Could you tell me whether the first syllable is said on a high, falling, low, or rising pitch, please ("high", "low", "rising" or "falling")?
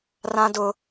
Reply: high